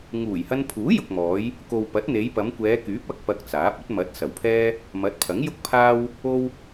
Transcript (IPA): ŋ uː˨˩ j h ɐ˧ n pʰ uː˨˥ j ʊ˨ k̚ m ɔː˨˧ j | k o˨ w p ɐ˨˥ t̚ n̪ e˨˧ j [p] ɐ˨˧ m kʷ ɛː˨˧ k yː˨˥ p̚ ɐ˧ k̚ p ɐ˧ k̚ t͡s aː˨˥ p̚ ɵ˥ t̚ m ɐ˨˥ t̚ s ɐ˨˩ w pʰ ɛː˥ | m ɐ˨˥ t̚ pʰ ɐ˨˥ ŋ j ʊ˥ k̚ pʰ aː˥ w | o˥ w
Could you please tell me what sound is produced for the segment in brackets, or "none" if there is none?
p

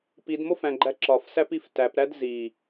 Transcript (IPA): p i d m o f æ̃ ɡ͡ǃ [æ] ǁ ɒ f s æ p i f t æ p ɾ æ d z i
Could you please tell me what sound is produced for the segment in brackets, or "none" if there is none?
æ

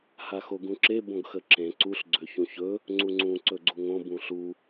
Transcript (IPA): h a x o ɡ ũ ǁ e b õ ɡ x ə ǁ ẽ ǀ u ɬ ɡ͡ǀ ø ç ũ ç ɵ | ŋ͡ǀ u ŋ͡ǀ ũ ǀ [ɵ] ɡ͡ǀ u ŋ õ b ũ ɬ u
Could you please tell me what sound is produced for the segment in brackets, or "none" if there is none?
ɵ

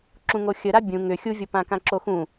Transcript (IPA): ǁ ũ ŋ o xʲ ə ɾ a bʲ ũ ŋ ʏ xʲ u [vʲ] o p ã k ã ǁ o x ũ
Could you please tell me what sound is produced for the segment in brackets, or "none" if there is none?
vʲ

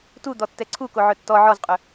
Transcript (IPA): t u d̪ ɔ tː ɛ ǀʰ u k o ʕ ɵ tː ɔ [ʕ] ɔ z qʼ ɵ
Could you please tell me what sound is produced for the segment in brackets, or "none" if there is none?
ʕ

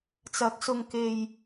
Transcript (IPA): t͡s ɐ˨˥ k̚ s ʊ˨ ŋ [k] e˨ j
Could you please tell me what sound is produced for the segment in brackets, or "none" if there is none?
k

